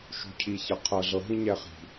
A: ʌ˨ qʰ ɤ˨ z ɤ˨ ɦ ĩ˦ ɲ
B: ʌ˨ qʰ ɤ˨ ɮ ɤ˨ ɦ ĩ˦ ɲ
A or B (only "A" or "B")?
B